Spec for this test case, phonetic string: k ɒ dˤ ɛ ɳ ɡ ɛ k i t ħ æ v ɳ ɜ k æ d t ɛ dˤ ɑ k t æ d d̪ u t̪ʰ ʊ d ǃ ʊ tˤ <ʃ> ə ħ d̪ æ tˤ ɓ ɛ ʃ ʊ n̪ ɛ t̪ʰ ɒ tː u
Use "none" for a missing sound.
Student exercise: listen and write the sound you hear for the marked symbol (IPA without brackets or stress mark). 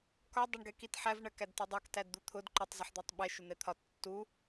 z